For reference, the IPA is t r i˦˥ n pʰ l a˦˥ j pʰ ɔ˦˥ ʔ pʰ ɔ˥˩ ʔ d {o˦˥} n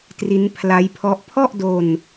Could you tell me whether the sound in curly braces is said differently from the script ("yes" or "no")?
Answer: yes